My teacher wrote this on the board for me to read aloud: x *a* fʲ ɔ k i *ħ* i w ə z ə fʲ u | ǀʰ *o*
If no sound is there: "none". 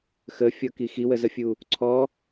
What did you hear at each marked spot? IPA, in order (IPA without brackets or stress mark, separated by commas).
ə, x, ɔ